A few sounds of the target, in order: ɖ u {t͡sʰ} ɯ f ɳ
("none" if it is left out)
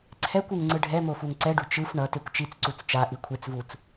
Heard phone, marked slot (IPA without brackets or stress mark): t͡ʃ